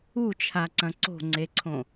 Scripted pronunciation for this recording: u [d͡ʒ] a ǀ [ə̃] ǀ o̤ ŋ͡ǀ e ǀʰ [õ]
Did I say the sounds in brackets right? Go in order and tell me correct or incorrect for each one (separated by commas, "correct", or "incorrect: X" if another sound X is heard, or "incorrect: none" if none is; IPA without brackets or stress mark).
incorrect: t͡ʃʰ, incorrect: ɐ̃, correct